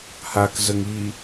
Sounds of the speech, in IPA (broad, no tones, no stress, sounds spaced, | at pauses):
h a k z ə ŋ i